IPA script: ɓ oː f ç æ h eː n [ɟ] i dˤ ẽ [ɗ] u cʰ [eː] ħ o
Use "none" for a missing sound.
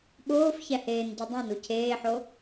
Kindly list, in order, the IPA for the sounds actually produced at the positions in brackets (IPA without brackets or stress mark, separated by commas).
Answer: ɟ, n, eː